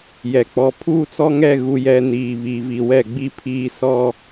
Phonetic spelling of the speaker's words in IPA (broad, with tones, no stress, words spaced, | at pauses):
jɛ˨k͡pɔ˨ pʰuː˦t͡sɔ˦ŋɛ˦˨ ɣu˨jɛ˨ niː˨βi˨vi˨ wɛ˦˨ɡ͡bi˦pʰiː˦ sɔ˦